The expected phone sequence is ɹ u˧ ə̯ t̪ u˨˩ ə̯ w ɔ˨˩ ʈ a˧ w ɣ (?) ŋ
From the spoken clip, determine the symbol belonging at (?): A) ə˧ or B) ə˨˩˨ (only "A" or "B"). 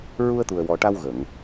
B